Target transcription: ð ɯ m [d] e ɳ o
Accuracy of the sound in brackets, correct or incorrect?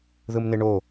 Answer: incorrect